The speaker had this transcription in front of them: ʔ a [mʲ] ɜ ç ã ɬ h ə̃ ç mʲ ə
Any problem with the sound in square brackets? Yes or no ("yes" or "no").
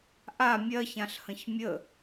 no